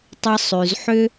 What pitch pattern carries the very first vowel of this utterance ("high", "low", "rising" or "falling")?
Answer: high